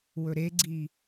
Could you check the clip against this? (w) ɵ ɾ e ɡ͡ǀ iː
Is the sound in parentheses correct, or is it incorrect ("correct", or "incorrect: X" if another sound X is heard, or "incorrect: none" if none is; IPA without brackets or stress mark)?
correct